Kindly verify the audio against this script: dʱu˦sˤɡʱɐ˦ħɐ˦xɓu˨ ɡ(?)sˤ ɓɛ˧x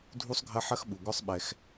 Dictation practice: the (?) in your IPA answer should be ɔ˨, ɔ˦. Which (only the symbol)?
ɔ˦